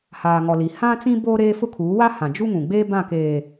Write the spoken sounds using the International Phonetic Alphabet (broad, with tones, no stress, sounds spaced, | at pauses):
h aː˨ ŋ ɔ˨ l i˨ h ã˦ t͡s ĩ˦ b oː˦ ɾ eː˦ f ʊ˦ kʰ uː˨˦ w a˦ h ã˨ d͡ʒ u˦ ŋ ũ˨ ɡ͡b eː˦ b ã˦˨ k eː˨